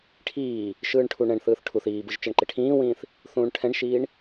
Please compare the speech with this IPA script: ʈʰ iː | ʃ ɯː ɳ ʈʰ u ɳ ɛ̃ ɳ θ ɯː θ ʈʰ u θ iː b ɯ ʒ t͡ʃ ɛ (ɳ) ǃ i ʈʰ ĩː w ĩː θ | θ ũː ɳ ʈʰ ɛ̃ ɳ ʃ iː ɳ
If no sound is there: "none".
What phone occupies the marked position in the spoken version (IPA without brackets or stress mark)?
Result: ɳ